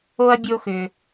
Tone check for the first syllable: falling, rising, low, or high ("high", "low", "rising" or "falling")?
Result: high